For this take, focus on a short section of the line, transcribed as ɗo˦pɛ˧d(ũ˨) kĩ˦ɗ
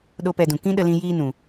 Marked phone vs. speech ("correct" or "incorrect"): correct